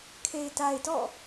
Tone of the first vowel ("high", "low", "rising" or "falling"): low